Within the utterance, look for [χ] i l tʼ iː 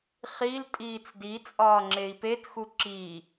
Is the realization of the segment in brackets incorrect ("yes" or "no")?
no